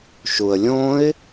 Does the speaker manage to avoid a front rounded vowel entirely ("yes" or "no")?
yes